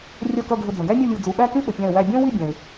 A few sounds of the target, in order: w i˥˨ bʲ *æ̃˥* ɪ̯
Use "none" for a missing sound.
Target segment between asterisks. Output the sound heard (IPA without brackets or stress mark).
æ̃˩